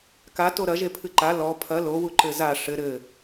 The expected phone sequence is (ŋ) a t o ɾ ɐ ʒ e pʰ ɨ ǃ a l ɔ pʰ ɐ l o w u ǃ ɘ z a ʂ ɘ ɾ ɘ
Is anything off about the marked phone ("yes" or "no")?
yes